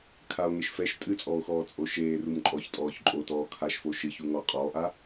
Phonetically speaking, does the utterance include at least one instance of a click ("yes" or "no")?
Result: yes